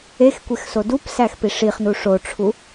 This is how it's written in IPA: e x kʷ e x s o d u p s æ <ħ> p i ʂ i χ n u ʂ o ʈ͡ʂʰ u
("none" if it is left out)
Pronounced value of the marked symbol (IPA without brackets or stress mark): x